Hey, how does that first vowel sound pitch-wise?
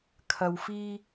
low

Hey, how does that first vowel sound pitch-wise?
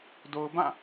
low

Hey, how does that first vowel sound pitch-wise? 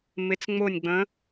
rising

